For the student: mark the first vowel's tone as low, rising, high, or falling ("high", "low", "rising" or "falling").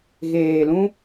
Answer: low